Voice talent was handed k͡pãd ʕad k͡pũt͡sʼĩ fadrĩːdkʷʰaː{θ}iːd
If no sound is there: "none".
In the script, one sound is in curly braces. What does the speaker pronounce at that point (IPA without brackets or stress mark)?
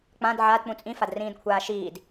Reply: ʃ